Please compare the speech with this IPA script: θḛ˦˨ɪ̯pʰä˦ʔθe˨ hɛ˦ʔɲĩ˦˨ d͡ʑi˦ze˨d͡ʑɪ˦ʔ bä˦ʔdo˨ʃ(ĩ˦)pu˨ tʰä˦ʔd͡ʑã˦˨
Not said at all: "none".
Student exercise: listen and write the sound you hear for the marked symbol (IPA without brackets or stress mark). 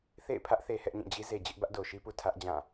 i˦